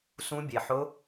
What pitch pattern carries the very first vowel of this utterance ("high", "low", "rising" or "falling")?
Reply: rising